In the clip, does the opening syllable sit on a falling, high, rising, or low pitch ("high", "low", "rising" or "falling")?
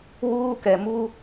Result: high